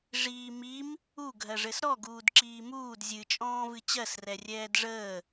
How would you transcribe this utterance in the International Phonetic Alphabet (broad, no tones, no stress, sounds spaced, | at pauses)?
ʐ iː m i m | u ɡʱ ɜ ʐ ɘ s ɾ ɔ ɡ uː d ǁ iː m uː d zʲ ɨ t͡ʃʼ ɔ̃ː v ɨ t͡ɕ ɜ s r ɛ rʲ ɛː d ʐ əː